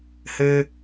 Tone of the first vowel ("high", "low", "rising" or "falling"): high